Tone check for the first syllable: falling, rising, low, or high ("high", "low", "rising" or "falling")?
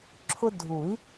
high